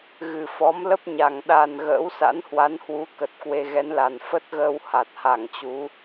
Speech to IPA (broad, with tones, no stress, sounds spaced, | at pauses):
ɣ ɨ˨˩ f ɔ˨˦ m l ə˦˥ p̚ ɲ a˨˩ ŋ ɗ a˨˩ n ɣ ə̰ː˧˥ w s a̰˧˥ n h w a˨˦ n h w u˨˦ k ə˨˩ t̚ k w e˧ ɣ ɛ˨˦ n l a˨˩ n f ə˦˥ t̚ ɣ əː˧ w h a˨˩ t̚ h a˧˩ ŋ t͡ɕ u˨˦